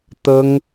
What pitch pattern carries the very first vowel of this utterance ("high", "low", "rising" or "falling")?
high